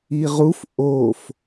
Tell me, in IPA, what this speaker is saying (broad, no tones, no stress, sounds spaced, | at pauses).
i ʁ u f ʔ o f